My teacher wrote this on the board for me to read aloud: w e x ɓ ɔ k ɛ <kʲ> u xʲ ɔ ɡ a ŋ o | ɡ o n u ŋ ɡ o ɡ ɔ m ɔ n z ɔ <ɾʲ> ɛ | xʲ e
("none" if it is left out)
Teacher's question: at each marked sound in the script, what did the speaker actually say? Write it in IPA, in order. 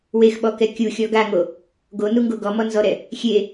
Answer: kʲ, ɾ

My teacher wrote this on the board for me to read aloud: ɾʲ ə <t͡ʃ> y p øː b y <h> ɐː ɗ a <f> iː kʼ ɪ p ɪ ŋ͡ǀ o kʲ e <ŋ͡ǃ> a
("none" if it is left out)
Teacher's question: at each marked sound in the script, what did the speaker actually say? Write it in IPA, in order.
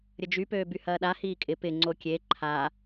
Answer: d͡ʒ, h, h, ǃʰ

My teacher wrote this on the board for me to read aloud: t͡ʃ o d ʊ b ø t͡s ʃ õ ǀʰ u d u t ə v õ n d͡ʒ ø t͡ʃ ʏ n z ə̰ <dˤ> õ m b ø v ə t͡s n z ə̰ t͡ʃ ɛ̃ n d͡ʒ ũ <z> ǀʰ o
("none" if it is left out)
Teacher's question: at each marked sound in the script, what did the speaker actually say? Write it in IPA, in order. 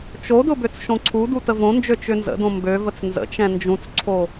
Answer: d, t͡s

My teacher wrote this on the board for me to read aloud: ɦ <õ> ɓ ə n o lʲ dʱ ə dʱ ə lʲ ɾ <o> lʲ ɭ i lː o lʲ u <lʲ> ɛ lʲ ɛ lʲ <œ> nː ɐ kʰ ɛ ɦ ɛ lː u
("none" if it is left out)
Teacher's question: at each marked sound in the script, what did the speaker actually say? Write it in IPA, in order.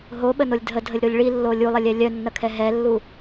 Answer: o, o, lˠ, œ

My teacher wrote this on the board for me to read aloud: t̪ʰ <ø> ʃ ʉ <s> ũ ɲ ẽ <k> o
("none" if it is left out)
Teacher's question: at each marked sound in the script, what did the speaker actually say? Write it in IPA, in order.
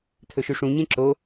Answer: ɵ, ʂ, ǁ

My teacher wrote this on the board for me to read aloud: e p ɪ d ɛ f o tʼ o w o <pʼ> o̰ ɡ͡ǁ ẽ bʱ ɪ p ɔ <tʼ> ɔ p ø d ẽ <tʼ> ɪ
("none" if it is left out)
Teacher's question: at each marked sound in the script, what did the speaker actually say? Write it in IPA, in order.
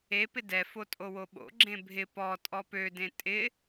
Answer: ɓ, tʼ, tʼ

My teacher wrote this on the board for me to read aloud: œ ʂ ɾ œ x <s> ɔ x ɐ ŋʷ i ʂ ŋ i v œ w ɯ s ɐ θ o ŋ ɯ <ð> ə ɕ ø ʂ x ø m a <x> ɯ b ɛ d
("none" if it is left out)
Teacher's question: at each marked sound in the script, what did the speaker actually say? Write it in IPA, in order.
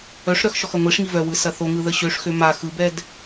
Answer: ʃ, ð, x

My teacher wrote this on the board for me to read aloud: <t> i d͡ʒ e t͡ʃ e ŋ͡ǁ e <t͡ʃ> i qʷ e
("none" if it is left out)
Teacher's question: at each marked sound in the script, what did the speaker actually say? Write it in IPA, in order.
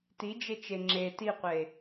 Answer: t, t

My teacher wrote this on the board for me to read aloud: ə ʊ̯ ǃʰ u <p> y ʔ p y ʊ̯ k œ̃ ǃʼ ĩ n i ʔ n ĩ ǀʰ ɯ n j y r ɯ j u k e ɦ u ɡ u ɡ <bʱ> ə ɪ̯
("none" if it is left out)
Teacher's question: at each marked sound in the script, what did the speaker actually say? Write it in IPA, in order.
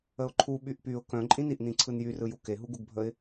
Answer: ɓ, bʱ

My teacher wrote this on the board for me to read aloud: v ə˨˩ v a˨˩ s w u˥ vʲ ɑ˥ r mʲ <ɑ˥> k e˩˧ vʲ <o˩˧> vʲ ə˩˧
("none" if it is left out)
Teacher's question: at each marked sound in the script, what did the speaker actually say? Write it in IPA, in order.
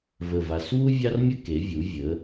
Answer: ə˥, u˩˧

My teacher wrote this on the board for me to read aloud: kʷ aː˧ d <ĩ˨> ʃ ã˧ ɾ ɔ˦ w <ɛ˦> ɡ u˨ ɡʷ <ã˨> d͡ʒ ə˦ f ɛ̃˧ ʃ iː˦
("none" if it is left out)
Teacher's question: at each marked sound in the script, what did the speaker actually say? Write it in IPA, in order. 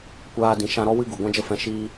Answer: ĩ˨, ɨ˦, ã˦

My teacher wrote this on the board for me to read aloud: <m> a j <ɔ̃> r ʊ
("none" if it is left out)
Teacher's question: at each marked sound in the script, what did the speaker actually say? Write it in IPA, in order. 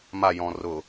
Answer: m, ɔ̃

